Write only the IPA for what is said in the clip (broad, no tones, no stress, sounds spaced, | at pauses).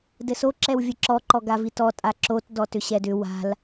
d ɘ s o ǁ ɛ w vʲ ɘ ǁ ɔ ǃ ɔ ɡ a v i t ɔ tʼ a ǁ o t d ɔ t ʏ ɕ ɛ d ʏ w a̤ l